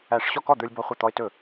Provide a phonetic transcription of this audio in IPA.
æ˥˩ ʂ ɕ ɔ˥˩ k ɔ˥˩ d̪ ə˞˦ lʲ b ɔ˦ χʷ ɤ˥˩ t̪ ɔ˦ ɪ̯ t ɵ˥˩

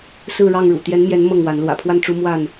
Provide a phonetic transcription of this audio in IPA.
s ɹ̩˥˨ ɻ ɑ˥˨ ŋ ɻ ṵ˨˩ t̪ j ɛ˨˦ n m j ɛ˨˦ n m ɤ˥˨ ŋ w a˨˦ n l w ä̰˨˩ pʰ w a˥˨ n ʈ͡ʂ u˦ m w a˥˨ n

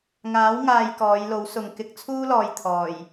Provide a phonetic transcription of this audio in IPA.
ŋ aː˨˥ w ŋ aː˨ j k ɔː˨˧ j l o˨˥ w s ʊ˨ ŋ k ɪ˨˥ k̚ t͡sʰ uː˥ l ɔː˨ j t̪ʰ ɔː˨˩ j

